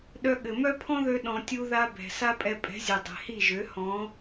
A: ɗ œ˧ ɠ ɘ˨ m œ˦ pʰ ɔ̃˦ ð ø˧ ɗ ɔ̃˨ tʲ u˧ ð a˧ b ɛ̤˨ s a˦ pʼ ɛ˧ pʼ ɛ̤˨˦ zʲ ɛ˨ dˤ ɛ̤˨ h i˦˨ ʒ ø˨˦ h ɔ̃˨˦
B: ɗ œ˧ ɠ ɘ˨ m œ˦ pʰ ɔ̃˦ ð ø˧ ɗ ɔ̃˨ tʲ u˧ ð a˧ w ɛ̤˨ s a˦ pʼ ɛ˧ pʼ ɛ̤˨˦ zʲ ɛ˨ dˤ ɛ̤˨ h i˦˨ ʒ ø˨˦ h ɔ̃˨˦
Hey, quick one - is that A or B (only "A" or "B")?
A